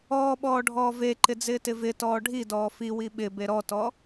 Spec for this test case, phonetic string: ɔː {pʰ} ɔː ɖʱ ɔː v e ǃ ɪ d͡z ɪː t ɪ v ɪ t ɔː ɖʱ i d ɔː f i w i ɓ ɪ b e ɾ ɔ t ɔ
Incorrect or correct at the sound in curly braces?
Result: incorrect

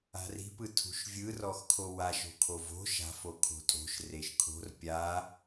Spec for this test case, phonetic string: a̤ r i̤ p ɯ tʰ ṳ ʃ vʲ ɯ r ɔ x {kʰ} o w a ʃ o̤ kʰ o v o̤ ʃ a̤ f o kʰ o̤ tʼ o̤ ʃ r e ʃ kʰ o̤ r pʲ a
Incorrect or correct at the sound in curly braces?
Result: correct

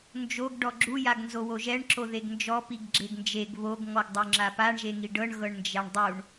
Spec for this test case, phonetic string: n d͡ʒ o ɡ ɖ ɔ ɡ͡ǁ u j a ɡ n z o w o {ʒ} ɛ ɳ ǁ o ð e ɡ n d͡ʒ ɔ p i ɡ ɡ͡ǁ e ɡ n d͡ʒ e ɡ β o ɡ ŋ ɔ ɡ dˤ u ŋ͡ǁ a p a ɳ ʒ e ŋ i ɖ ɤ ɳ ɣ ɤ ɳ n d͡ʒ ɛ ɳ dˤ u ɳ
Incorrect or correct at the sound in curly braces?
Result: correct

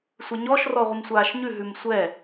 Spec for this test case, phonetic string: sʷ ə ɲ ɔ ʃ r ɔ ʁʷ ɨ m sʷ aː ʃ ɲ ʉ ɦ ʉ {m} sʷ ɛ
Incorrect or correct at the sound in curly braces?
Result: correct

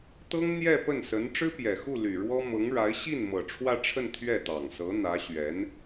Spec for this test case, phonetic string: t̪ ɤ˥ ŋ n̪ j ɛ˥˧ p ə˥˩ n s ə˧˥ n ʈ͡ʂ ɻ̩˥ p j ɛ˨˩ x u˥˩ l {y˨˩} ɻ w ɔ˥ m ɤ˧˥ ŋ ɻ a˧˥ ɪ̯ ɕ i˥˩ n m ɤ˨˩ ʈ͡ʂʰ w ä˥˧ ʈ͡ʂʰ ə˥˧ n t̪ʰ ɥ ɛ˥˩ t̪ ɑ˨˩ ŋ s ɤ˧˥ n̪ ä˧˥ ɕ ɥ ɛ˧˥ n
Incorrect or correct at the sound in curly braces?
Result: correct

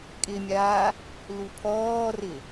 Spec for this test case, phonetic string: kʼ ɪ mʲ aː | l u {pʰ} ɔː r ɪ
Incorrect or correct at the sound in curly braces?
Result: correct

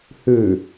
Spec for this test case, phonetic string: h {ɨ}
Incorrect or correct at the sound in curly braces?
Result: incorrect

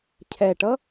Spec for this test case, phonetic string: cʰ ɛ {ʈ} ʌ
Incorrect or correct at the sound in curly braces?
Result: correct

